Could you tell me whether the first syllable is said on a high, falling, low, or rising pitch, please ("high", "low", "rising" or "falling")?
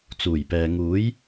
low